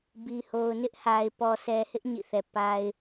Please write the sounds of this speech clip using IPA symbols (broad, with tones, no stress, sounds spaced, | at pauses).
b i˨ h o˨ ʊ̯ n ɪ˦ ʔ h a˨ ɪ̯ p ɔ˨ s ɛ˨ h ɪ˦ ʔ ɲ ḭ˦˨ θ ɛ˨ p a˦ ɪ̯